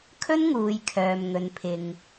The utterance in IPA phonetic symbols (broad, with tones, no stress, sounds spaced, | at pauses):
kʰ ɵ˥ n ŋ uː˨ j kʰ œː˨ m ŋ ɵ˨ n pʰ ɪ˨ ŋ